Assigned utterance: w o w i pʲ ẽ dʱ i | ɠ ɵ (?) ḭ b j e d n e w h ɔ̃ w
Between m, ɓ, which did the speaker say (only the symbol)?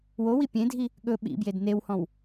ɓ